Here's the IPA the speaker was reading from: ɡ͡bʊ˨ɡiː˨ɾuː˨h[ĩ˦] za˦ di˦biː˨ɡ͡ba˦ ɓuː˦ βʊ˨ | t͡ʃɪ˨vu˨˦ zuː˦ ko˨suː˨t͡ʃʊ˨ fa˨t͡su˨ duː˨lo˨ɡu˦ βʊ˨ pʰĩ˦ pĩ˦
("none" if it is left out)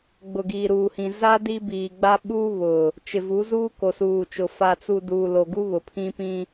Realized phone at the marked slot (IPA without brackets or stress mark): ĩ˨